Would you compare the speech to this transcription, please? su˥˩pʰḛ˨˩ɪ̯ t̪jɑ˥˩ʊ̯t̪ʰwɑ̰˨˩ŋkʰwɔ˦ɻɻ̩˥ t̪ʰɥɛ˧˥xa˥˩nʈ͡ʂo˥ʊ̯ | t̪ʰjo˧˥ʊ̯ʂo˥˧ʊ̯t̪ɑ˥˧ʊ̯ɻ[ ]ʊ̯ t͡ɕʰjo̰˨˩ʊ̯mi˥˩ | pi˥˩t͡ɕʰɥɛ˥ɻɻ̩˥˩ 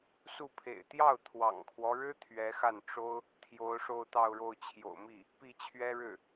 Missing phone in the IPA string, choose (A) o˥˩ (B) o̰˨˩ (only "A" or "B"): A